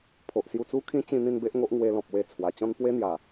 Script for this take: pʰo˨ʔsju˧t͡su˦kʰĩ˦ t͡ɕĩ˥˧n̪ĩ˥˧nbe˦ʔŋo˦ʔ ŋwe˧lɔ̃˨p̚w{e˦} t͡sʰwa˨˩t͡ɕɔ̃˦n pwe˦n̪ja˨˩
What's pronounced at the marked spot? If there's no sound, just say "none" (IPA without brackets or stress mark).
e˧